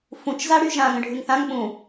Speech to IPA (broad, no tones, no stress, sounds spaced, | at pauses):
f ũ t͡ʃ z a ɽ y ʒ ã ŋ ə̃ ɖʱ y ŋ θ ã ŋ ɓ ũ